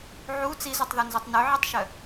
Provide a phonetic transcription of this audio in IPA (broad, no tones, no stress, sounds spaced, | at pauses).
ʕ u t͡s i z u tˤ ð o n z u tˤ n ø ʕ i tˤ ʃ œ